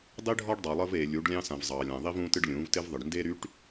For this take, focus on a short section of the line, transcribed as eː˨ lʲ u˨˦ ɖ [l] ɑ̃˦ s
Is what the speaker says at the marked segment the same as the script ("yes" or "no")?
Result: no